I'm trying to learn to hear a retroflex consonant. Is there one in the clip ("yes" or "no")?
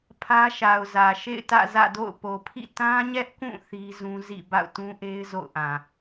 no